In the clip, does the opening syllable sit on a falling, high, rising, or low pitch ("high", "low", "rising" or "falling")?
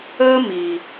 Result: high